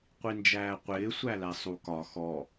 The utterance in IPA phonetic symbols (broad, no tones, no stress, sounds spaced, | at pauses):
qʷ i n d͡ʒ æː qʷ ɪː sʷ æ l æ sˤ u k ɒ x ɔ